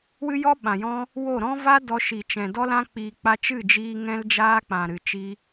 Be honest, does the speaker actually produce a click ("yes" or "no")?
no